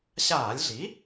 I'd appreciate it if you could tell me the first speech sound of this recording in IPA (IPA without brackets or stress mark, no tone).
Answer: ɕ